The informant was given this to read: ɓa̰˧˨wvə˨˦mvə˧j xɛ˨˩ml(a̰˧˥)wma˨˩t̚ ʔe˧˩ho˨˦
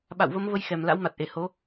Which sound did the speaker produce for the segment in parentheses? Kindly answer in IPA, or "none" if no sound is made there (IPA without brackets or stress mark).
a̰˧˥